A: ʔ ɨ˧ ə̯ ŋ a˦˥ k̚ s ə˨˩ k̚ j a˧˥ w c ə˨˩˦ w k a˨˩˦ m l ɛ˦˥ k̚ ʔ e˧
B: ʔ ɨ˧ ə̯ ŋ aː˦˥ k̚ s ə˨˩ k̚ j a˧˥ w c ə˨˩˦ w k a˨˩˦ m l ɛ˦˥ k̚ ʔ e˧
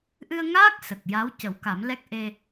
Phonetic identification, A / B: B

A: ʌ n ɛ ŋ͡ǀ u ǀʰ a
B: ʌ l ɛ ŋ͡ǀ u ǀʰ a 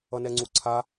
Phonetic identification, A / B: A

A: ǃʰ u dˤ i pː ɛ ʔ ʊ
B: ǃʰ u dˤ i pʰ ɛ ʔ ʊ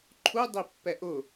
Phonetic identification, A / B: A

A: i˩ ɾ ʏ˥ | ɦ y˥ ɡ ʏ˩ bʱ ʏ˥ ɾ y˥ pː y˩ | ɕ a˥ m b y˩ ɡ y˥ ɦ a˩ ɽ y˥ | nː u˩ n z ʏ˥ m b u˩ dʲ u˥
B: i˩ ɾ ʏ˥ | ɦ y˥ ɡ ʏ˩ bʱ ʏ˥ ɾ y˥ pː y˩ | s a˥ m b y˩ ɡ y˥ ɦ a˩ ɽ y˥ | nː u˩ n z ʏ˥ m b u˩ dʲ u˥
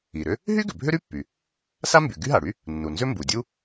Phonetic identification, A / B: B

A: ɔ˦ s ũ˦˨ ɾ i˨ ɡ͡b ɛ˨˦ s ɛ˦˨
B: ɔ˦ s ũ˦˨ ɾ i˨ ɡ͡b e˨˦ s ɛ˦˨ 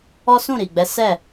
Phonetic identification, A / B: A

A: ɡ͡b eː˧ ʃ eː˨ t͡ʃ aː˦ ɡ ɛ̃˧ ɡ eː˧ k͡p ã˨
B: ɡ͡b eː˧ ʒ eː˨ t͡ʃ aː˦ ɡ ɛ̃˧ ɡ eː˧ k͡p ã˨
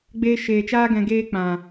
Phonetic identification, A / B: A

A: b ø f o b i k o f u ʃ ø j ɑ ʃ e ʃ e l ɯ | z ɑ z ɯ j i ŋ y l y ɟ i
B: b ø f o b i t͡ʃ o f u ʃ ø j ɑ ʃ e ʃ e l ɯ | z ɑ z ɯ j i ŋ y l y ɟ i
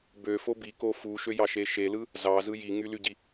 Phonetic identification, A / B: A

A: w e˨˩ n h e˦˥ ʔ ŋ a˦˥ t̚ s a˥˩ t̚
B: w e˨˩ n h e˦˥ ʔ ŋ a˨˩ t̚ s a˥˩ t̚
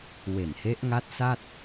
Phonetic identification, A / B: A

